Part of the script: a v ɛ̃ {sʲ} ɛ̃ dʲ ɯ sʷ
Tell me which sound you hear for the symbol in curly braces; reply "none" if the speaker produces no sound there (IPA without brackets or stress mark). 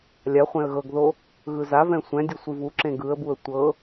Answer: sʷ